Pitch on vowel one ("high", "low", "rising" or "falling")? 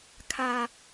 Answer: high